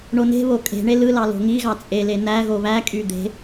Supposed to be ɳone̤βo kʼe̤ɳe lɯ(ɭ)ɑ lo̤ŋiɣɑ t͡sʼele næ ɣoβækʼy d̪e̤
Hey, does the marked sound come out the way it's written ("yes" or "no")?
no